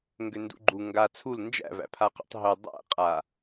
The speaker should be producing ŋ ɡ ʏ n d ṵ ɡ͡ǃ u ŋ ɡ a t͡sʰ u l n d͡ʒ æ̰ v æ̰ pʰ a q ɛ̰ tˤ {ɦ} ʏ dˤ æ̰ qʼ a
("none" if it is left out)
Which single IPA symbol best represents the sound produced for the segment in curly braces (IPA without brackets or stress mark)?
ɦ